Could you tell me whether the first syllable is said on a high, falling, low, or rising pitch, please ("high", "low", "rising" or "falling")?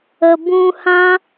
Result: low